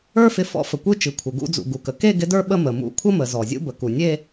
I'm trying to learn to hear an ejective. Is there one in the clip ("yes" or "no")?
no